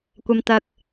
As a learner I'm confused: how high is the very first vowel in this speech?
low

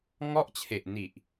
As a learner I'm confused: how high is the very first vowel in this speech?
mid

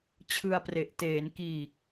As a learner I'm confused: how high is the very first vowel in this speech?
high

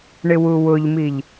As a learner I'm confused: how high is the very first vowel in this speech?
high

